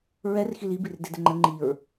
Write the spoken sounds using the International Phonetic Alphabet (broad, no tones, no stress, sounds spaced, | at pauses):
ɹ ɛ r x i l i b i r d e d ɘ ŋ͡ǃ ə ŋ͡ǃ i ɹ